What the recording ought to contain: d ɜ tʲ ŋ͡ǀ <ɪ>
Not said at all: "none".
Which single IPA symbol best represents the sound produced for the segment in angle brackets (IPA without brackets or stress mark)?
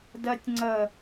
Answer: ə